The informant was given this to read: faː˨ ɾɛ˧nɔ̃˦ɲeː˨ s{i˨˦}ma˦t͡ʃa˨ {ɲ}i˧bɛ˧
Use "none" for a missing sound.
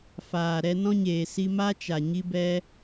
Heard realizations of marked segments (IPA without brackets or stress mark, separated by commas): i˧, ɲ